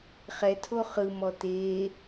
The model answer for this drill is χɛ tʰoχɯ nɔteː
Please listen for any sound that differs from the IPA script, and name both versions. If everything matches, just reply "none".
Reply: n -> m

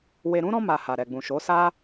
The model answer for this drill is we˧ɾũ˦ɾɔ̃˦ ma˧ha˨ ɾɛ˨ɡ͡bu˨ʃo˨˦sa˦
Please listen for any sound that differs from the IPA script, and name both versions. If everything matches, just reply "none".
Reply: u˨ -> ũ˨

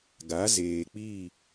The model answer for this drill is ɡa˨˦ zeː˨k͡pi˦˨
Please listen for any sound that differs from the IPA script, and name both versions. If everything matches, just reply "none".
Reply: none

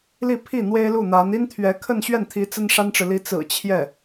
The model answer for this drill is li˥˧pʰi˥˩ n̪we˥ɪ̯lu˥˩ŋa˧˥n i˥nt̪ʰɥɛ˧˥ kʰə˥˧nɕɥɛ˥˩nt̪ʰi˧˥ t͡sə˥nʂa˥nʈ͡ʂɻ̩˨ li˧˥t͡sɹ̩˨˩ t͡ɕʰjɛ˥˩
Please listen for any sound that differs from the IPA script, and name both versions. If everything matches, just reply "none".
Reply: ŋ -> n̪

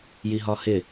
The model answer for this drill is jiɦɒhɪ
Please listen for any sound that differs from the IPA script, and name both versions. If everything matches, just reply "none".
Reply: none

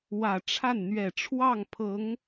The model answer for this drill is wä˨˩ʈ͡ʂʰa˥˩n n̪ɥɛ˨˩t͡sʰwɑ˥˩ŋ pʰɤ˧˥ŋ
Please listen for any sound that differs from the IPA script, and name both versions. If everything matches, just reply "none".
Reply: t͡sʰ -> ʈ͡ʂʰ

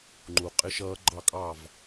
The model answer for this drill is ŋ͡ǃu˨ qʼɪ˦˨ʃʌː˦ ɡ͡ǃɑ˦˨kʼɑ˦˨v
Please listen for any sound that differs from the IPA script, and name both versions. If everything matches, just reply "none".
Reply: none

